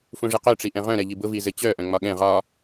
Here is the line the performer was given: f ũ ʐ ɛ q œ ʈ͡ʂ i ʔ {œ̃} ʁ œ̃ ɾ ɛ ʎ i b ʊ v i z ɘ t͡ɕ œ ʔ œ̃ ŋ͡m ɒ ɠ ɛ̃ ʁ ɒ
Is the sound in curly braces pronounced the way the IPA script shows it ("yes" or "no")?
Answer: no